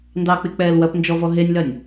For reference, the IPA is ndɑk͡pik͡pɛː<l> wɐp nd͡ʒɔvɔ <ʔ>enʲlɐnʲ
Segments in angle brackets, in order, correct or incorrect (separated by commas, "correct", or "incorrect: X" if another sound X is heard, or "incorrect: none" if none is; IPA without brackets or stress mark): correct, incorrect: ɦ